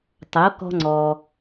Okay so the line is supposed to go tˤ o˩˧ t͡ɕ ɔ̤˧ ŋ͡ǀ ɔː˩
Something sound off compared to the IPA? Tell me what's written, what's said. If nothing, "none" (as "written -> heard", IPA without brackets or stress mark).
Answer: t͡ɕ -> k